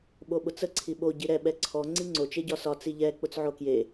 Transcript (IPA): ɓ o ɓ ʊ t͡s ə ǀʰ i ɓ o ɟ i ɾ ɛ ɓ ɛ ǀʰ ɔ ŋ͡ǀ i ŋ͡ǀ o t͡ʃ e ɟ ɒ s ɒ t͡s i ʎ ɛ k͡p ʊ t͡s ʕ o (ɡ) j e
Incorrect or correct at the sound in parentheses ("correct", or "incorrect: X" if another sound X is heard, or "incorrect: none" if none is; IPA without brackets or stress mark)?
incorrect: k